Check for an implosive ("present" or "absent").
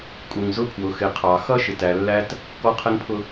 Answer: absent